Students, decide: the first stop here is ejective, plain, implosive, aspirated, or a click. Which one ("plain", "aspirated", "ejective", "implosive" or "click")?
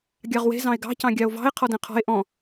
plain